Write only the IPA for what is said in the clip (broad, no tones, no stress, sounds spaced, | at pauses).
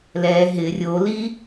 l ɛ ɦ ɪ rʲ o l i